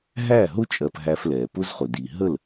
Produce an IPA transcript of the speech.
ɦ æ˦˨ ɦ ʊ˦ t͡ʃʼ ɜ˧ p ɦ æ˧ f l ɛː˨ p ʊ˦ z χ ʊ˨ d i˨ ɦ ə˦˨ l

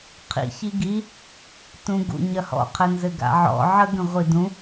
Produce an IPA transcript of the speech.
qʰ ḭ ç i ɡ i | t ũ ɡ ṵ ɲ ɐ h ɔ̰ qʰ ɘ n z ɘ ɡ a̰ ʕ ɔ̰ ʕ ə ɡ ə̃ ʁʷ i d ũ

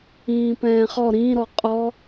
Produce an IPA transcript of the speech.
ĩː p ɛ̃ː χ ɔ ɾ ĩ ɾ ɔ qʼ ɔ

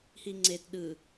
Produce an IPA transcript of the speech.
h i ŋ͡ǀ e t ɗ ɯ

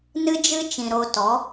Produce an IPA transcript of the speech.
n ɨ˦ d͡ʒ ɨ˦ t͡ʃ ĩ˨ ɾ o˧ t ɔ˨˦

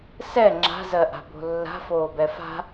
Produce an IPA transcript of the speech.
s ɛ ŋ͡ǁ a̤ z ɜ ʔ a̤ b o̤ lː a̤ f oː b ɛ f a̤

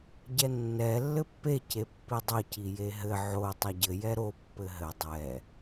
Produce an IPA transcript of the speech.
ɟ ɛ nː ɛ lː ɘ pː e c e pː i dˤ ɘ c i j e ɦ ɘ ʕ o tˤ ɐ ɟ ɘ j ɛ ɾ o pː ɘ ɦ ɘ dˤ ɛ

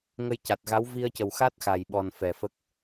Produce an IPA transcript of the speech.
ŋ ə˧ j c a˨˩ t̚ ɣ a˧˥ w v i˧ ə̯ c ə˨˩ w x a˦˥ t̚ x a˨˩ j ɓ ɔ˨˩ n f ɛ˨˩ f ə˦˥ k̚

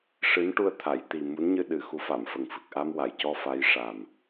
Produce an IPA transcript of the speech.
ʂ ɨ˧˥ n ʈ u˧ ə̯ t̪ʰ a˨˩˨ j t̪ i˨˩ m u˧˥ n ɲ ɨ˧ ɗ ɨ˨˩ x u˧˥ f a˨˩˨ m f ə˨˩ ŋ f ɨ˨˩ k̚ ʔ a˧ m w a˨˩˨ j c ɔ˧ f a˧˥ j ʂ a˨˩ m

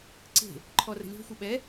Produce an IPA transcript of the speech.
ǀ e̤ | ǃʰ ɔ r ə̤ lʲ ɔ̤ xʷ ə ɓ ɛ

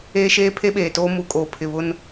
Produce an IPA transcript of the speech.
eː˦ ʃ eː˦ pʰ e˦ ɓ eː˨ t oː˦ m u˨ kʼ oː˨ pʰ ɪ˨ β ʊ˦ n

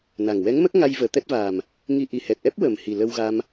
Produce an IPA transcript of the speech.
n a˨˩ ŋ w ɛ˧˥ ŋ m ə˦˥ k̚ ŋ a˧ j v əː˨˩˦ t̪ ɛ˦˥ t̚ v aː˨˩ m | ŋ i˧ ʔ i˨˩ h ɛ˨˩ t̚ ʔ ɛ˦˥ p̚ w ə˨˩ m h i˨˩ l ə˧ w ɣ a˧ m

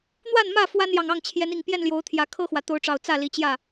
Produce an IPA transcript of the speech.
n̪ w a˥˨ n m ä˥˨ f w a˦ n j ɑ˨ ŋ ɑ˥˨ ŋ t͡ɕʰ j ɛ˨˦ n i˨˩ ŋ p j ɛ˥˨ n l j o˨˦ ʊ̯ t̪ʰ j ä˨˦ kʰ ɤ˦ x w ä˨ t̪ o˨˦ ʊ̯ ʈ͡ʂ ɑ˨˩ ʊ̯ t͡s ä˥˨ l i˨˦ t͡ɕ j ä˥˨

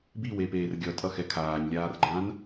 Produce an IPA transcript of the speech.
b i w e p eː r ɡʲ ʌ tʼ ʌ x ɛ kʰ aː ɲ lʲ aː r ɡ͡ǃ ãː n

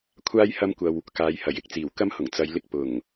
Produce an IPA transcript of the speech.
kʷʰ aː˥ j h ɐ˥ m kʷ ɐ˧ w | k aː˨˧ j h ɐ˨˩ j ɪ˨ k̚ t͡s iː˨˩ w k ɐ˥ m h ʊ˨˩ ŋ t͡s ɐ˨˧ j l ɪ˧ k̚ p ʊ˨˩ ŋ

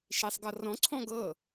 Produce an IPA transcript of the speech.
ʃ i sˤ ɡ ɤ r ɔ̃ ǀʰ ɔ̃ ɡ ɤ

